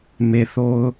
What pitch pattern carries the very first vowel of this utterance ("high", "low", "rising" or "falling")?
low